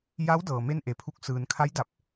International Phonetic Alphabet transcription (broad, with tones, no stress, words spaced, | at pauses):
ja˧˥w dɤː˩ me˥˨nʔe˩˧pʰu˧k̚ sɯː˩nkʰa˧˥jda˧˩p̚